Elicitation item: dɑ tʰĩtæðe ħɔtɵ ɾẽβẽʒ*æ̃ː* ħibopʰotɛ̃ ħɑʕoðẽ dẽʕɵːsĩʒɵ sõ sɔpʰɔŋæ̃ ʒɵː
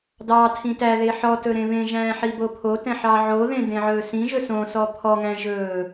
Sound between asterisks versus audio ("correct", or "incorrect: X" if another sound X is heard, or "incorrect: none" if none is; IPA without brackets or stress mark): correct